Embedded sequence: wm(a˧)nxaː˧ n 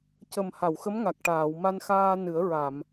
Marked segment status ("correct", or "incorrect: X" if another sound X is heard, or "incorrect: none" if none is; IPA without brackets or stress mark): correct